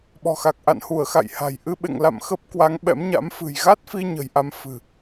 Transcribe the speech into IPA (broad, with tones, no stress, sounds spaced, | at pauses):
ɓ ɔ̤˨˩ x a˨˩ k̚ ʔ a̰˧˨ n h u˧˩ ə̯ x a̰˧˨ j h a̤˨˩ j ʔ ɨ˧ ɓ ḛ˧˨ ŋ l a̰˧˨ m x ə˦˥ p̚ k w a˨˦ ŋ ɓ ɛ̰˧˥ m ɲ a̰˧˥ m f ɨ̤˨˩ j ɣ a˦˥ t̚ f i˧ ɲ ə̤˨˩ j ʔ a˧ m f ɨ̤˨˩